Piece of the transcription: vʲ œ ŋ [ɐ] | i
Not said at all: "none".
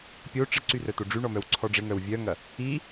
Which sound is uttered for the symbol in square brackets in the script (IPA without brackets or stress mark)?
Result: ɐ